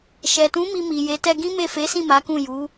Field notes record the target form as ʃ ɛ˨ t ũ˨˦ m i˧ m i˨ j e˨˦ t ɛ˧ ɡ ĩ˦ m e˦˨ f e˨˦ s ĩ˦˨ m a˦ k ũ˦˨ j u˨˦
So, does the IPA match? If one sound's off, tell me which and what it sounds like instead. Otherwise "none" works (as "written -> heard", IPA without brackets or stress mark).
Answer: a˦ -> a˨˦